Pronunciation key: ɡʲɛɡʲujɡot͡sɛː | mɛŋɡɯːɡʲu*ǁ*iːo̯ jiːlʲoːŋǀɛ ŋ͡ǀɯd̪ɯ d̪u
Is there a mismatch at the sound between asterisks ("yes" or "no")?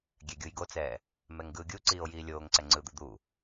yes